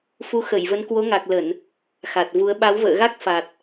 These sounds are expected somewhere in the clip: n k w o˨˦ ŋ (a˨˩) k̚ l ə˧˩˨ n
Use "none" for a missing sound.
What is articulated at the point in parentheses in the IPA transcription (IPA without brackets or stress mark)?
a˨˩